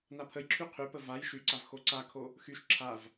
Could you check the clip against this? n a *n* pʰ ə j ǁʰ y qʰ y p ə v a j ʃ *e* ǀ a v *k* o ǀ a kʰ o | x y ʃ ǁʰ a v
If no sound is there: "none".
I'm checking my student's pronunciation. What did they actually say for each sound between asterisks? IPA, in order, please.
none, y, x

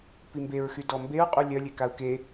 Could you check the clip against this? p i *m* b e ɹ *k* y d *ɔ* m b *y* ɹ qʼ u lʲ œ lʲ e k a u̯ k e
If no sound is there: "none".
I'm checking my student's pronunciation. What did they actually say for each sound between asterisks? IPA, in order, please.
m, x, ɔ, e

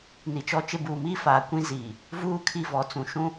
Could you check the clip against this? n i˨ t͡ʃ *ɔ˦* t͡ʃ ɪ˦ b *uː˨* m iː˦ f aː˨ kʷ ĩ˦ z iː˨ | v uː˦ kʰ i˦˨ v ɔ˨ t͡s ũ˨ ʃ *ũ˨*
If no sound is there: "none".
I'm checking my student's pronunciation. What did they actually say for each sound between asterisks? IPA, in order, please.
ɔ˦, uː˨, ũ˦

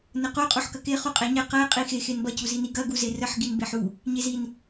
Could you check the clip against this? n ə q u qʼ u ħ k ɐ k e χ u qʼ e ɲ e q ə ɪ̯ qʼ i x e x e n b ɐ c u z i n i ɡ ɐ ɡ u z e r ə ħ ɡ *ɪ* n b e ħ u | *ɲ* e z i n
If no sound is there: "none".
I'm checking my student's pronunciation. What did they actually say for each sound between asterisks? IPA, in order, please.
i, ɲ

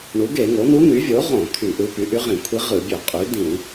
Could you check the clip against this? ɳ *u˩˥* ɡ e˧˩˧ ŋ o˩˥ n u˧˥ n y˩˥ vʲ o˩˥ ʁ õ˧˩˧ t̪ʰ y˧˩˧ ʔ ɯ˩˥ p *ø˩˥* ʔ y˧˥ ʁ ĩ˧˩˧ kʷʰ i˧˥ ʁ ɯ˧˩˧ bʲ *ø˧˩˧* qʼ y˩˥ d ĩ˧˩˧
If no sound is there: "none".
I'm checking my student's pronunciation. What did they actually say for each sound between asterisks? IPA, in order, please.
u˩˥, y˩˥, ø˧˩˧

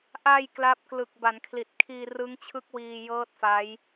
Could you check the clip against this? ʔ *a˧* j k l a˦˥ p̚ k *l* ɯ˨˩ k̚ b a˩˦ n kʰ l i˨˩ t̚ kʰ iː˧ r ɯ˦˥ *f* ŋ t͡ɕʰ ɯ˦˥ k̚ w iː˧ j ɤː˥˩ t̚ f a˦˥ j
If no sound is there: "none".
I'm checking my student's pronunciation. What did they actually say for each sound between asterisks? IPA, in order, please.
a˧, l, none

